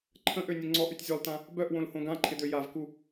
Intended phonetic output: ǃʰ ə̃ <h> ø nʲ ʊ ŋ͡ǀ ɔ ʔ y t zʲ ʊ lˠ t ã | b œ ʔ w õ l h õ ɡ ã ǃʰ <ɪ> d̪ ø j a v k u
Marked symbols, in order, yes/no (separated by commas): no, yes